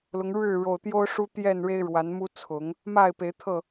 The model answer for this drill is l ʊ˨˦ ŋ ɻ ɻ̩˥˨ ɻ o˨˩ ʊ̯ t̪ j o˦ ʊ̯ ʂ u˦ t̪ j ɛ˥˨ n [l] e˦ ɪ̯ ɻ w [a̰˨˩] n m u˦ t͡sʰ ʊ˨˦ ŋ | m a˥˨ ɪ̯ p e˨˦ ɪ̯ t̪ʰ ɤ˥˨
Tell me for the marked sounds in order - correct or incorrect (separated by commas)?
incorrect, incorrect